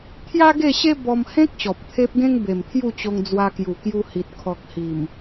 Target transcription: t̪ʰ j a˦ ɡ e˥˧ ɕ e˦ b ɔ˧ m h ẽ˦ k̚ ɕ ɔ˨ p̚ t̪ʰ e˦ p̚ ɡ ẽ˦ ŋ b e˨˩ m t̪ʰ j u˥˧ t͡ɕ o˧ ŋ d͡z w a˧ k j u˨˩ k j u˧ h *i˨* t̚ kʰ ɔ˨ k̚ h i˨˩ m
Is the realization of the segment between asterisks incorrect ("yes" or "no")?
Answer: no